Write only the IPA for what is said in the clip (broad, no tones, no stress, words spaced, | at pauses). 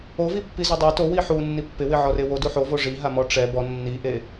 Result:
ovipːi zudˤe towi ħu nːipːɪwɪ ʕɔrewo duħovo ʐiɦamɔ ʈ͡ʂɛ bɔ nːiʔe